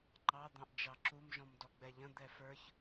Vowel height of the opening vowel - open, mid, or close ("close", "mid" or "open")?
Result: open